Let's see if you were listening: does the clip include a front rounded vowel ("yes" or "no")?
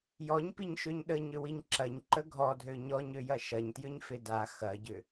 yes